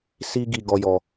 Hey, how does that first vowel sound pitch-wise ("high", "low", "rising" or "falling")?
high